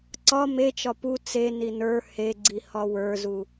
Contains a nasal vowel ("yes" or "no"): no